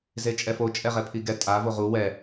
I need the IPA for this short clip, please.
z e t͡ʃʼ ɛ f o t͡ʃʼ ɛ ʁ ɛ pʰ i ɡ ɛ tʼ a v o ʁ u w ɛ

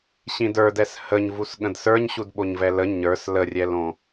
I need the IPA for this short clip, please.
ɕ ĩ d ə˞ d ɛ s h ə ɲ v u s ɠ ə̃ d s ə˞ ɲ ɕ u d ɓ o ɲ v ɛ l ə ɲ ə˞ s l ə rʲ ɛ l õ

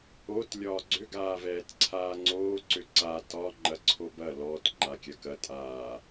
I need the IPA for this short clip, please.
o t lʲ ɒː ɡ͡ǀ ʏ ɡ aː v ɛː t ǀʰ aː ŋ͡ǀ oː ǀ ʏ ǀ a t ɒ ŋ͡ǃ ɐ ǀʰ o b ɐ l ɔ t ŋ͡ǃ a kʲ ɐ k ɐ tʼ aː

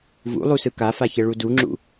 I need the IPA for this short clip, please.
v ṵ lˠ u s ɯ k a f a ç ɛ ɭ u d u ŋ͡ǁ ṵ

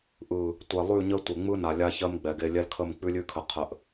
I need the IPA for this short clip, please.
ʔ ɯ˨ | tʷ ɛ˨ lˠ ʉ˦˨ ɲ ə˦ tʷ e˨ ŋ͡m ɯ˦ n a˨ lʲ a˦ ç ɜ˦ m ɡ͡b ɛ˨ ɡ e˦ lʲ ɛ˦ l kʰ ə˦˨ m k͡p ʉ˦ lʲ ʉ˦ kʰ ə˨ qʰ ə˨ ʔ

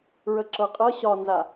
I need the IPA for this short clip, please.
ɹ ə ǁ ɤ qʼ ɤ ɕ ɒ n z a

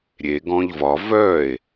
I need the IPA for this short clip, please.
ɾʲ e ɡ ɔ̃ ʎ v ɒ v œ e̯

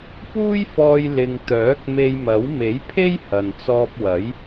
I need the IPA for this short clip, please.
p uː˥ j f ɔː˧ j l ɪ˨ ŋ t̪ œː˨˥ k̚ m e˧ j m ɐ˨˥ w m e˨˥ j pʰ e˥ j h ɐ˨ n t͡s ɔː˧ p̚ w ɐ˨˥ j

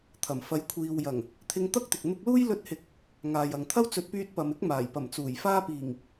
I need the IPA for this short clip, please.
t̪ʰ ɐ˨˩ m f ɐ˨˧ j kʷʰ iː˨ w j ɐ˨˩ ŋ | t̪ʰ ɪ˧ ŋ t̪ ɐ˥ k̚ t̪ ɪ˨ k̚ n̪ ʊ˧ k̚ l uː˥ j l ɵ˧ t̚ h ɪ˨˥ k̚ | ŋ aː˨ j ɐ˨ ŋ t̪ʰ ɐ˥ w t͡s ɵ˨˥ t̚ p yː˧ t̚ p ɐ˨ m ɪ˥ k̚ m aː˨˩ j p ɐ˨˩ m t͡s uː˨˩ j f aː˧ p iː˨˩ ŋ

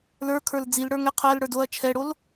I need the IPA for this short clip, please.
l ə˞ kʰ ə˞ l d͡z i l ɽ ə˞ ŋ ɛ qʰ ɜ l ɽ ə˞ d o ɐ̯ t͡ʃʰ ɛ ɽ o l

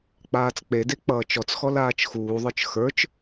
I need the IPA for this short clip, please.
k͡p aː t͡s k͡p e d e k͡p ʌː t͡ʃ ɔ t͡s x ɔ l aː t͡ʃ x uː ðˤ ə˞ t͡ʃ x ə˞ t͡ʃ

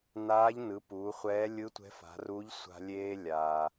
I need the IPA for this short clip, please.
n aː˧˥ ʎ n ɯ˩˧ p uː˩˧ χʷ ɛː˧˥ lʲ ɯ˧˥ tʷ ɛ̤˧˥ f a̤˩˧ r u˧˥ ʎ sʷ a̤˧ lʲ eː˧ lʲ a˩

